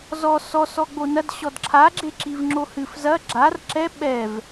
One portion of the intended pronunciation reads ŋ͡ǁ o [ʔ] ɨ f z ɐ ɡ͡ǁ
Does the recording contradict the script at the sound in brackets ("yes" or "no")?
yes